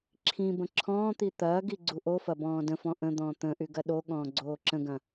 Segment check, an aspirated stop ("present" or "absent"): present